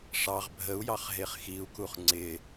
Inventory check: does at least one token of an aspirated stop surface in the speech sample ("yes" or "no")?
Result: no